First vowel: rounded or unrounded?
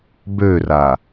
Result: rounded